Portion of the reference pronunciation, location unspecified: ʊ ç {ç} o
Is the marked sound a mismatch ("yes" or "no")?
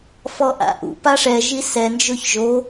yes